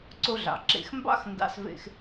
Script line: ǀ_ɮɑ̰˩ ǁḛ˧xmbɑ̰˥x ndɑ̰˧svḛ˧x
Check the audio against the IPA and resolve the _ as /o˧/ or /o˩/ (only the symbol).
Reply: o˧